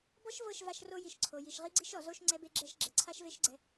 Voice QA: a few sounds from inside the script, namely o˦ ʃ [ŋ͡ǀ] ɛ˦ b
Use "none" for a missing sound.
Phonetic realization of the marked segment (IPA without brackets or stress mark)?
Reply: ŋ͡ǀ